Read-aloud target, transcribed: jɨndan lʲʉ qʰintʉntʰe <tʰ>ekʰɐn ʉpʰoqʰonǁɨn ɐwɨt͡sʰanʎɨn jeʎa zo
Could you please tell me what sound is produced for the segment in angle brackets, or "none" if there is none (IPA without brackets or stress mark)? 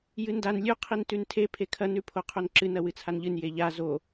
pʰ